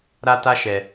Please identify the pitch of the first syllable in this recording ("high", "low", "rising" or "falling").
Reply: high